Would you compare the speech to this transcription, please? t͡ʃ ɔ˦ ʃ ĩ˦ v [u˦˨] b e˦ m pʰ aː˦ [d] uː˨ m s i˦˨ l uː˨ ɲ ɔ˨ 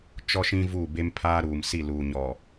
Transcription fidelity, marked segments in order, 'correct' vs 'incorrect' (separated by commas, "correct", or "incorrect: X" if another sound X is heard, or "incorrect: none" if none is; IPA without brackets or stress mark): correct, incorrect: ɾ